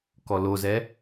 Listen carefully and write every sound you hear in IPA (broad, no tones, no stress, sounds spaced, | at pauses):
k ɔ l o z ɛ